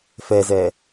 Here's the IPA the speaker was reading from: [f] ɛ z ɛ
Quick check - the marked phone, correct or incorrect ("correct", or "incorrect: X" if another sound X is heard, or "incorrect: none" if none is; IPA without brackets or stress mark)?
correct